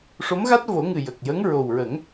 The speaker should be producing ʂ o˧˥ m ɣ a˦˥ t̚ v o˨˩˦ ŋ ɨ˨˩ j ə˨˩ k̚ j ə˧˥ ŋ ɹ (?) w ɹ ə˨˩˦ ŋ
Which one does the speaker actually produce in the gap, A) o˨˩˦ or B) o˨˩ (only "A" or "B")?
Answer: B